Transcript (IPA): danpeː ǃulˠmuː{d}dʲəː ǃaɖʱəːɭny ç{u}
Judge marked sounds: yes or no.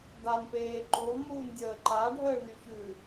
no, no

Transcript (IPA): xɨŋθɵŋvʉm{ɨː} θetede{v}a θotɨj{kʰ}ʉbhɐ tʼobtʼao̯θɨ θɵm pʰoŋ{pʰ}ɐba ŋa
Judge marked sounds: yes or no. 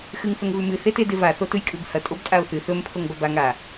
no, yes, no, no

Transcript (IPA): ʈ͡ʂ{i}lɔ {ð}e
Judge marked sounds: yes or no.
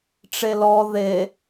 no, yes

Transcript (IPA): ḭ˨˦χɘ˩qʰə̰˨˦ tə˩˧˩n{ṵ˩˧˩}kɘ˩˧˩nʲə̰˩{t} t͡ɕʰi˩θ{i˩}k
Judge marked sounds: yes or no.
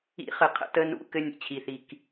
no, no, yes

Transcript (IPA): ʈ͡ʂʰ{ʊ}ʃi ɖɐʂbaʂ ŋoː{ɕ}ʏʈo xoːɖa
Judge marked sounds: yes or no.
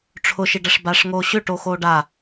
yes, yes

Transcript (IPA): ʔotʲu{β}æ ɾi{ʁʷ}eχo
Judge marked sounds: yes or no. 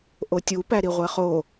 no, yes

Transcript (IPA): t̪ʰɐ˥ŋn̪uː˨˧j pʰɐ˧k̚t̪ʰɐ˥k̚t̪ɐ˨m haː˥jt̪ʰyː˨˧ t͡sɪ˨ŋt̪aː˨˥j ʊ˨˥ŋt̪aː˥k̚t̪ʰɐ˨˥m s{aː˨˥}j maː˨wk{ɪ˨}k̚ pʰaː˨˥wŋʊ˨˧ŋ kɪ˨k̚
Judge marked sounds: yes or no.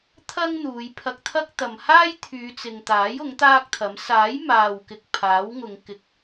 yes, yes

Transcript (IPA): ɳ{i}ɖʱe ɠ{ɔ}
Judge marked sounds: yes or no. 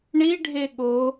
yes, no

